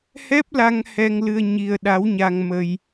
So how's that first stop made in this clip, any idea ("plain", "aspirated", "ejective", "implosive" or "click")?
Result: plain